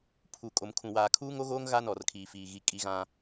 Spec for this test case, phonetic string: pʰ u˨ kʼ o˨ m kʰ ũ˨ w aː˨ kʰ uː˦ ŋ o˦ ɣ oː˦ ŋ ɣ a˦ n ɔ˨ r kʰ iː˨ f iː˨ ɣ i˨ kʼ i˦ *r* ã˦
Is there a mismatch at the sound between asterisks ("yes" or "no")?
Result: yes